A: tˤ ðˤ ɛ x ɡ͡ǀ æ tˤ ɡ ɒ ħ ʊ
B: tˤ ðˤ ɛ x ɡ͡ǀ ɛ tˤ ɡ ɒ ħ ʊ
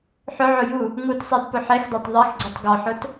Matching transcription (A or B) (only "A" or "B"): B